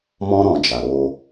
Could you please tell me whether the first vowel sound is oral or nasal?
nasal